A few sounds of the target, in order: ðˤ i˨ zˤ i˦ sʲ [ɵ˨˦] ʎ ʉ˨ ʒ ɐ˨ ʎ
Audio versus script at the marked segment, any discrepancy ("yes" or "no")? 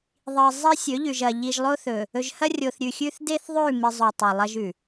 no